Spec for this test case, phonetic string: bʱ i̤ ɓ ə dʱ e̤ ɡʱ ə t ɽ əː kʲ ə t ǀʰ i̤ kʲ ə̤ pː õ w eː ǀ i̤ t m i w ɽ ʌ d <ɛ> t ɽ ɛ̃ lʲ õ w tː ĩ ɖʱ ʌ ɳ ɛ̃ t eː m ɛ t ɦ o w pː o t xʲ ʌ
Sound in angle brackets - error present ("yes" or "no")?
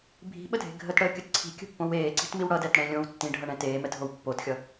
no